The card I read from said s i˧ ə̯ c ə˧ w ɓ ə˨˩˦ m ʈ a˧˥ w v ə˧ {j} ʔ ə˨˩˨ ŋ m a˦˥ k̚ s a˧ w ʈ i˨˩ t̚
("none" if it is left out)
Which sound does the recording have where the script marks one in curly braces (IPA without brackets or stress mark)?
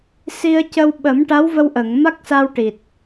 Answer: w